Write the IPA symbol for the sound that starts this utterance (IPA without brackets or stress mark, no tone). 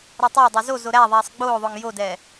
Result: ɾ